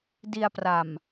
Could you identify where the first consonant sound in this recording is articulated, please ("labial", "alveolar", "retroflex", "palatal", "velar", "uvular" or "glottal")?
alveolar